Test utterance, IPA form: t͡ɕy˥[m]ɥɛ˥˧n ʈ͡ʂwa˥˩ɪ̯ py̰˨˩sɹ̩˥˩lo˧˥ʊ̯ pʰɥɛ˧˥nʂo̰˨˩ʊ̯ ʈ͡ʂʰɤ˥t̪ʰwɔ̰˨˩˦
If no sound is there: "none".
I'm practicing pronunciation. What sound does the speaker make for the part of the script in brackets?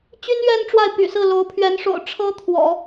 n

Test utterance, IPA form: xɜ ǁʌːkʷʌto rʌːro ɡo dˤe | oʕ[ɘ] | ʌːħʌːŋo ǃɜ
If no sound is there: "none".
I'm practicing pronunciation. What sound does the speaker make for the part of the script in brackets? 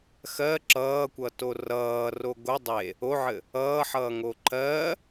ɘ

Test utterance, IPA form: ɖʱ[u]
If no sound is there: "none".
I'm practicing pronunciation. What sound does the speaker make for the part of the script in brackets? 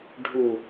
u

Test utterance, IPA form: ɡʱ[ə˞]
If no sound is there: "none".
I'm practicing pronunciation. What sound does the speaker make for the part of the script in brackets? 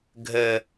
ə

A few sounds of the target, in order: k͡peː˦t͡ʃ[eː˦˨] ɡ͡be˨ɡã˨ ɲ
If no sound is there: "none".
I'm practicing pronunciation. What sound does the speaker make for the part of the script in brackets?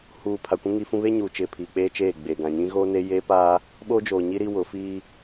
eː˦˨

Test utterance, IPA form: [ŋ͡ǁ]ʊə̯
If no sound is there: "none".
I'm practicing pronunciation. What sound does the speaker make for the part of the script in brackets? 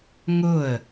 ŋ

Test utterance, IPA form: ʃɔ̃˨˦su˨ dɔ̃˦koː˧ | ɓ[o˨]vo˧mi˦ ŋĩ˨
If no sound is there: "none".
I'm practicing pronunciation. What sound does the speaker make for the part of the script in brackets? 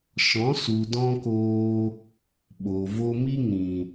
o˨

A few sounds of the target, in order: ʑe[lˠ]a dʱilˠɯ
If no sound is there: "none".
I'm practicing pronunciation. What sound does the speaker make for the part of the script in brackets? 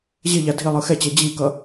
ʎ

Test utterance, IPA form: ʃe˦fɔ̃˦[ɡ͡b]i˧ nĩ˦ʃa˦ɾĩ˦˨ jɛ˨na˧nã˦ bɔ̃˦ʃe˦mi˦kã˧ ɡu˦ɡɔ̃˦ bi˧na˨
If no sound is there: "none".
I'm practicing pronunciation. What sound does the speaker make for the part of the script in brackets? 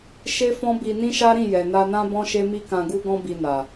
b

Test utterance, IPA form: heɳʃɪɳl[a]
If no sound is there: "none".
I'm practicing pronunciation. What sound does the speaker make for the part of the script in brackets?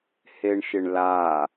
a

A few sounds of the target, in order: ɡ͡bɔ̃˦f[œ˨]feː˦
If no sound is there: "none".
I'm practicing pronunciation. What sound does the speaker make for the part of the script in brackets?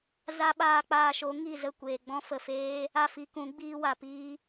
ə˨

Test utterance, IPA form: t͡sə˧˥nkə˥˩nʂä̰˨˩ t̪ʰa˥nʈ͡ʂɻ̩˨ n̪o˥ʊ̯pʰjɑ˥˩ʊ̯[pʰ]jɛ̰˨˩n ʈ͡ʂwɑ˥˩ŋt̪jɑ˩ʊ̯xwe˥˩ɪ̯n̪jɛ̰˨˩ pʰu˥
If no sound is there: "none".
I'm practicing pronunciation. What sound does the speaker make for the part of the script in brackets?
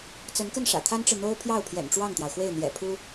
pʰ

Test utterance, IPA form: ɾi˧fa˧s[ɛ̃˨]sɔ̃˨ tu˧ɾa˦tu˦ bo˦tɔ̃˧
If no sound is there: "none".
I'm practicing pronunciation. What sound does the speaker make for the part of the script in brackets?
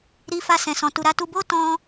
ɛ̃˨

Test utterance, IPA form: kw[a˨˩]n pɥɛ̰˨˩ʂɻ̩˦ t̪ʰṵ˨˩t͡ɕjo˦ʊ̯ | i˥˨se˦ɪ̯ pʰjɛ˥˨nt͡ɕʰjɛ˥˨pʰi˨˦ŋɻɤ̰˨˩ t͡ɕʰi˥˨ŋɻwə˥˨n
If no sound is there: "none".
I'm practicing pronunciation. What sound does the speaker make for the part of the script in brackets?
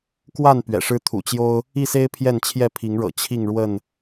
a˥˨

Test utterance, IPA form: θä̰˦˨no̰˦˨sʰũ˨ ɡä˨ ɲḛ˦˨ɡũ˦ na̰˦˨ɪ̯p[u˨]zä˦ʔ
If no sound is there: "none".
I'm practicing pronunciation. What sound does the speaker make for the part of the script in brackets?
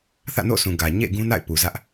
u˨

